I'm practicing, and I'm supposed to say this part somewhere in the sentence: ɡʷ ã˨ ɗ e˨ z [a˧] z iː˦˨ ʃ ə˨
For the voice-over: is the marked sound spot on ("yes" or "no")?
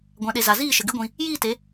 no